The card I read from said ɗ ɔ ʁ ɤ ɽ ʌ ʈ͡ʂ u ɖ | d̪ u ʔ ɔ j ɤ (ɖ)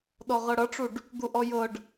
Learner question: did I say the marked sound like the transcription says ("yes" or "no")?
yes